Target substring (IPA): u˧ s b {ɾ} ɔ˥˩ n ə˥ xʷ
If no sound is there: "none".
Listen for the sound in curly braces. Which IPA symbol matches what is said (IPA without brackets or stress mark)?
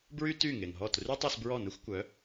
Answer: ɹ